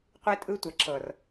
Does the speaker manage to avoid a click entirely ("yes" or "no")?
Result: no